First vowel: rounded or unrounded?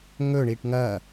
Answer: rounded